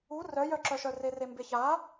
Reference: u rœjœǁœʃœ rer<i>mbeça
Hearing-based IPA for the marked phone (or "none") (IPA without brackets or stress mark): e